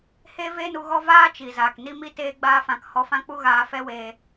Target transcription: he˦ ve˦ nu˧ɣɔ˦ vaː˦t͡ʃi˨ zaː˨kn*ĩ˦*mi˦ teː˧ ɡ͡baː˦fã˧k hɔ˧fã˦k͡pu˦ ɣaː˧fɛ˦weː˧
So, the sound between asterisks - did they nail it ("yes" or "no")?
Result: no